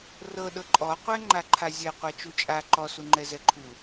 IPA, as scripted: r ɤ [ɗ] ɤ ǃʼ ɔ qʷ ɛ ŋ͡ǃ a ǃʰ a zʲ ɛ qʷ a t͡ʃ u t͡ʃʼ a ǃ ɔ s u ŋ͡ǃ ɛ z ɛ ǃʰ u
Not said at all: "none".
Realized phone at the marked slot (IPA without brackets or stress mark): ɗ